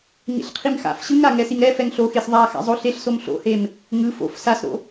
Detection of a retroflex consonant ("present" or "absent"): absent